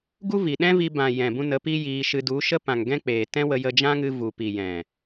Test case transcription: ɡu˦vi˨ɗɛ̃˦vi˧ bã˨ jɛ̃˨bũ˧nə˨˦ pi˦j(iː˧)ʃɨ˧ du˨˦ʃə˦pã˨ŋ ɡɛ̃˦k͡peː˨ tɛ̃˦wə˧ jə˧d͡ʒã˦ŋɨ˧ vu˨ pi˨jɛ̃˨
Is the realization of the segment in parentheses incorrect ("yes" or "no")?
no